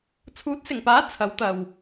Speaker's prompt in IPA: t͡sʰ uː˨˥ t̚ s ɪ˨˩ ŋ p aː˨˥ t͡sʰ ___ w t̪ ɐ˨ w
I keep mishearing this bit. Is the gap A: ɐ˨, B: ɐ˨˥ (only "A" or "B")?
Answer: B